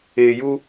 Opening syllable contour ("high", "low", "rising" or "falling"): low